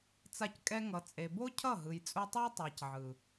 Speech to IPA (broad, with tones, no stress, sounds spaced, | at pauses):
t͡s a˧ c kʼ ɛ˧ ŋ ʌ˨ t͡sʼ e˨ b o˦ cʰ ʌ˦˨ ɦ ɯ˨ j t͡sʼ u˧ tˤ ɯ˦ j tˤ a˨ c ʕ ɯ˨